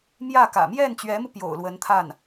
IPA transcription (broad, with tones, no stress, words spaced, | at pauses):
mjä˥˩kä̰˨˩ mjɛ˥˩nt͡ɕɥɛ˧˥mu˧ pjo̰˨˩ʊ̯lwə˧˥nt̪ʰa˥˩n